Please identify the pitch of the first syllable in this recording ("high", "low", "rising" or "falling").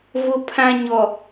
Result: high